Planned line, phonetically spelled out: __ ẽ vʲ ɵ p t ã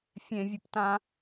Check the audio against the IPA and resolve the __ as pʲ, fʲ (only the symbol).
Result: fʲ